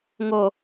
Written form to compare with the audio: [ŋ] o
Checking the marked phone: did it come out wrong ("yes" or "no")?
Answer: no